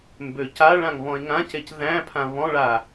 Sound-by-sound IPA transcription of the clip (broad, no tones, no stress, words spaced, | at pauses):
mbøcaɭãŋ βɔ̃e̯ŋãcec ðæ̃ pʰãβɔ̃ɭa